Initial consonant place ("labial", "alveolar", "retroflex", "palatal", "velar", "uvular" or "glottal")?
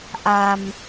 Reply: glottal